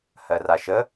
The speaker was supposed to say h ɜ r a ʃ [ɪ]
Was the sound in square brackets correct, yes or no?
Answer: no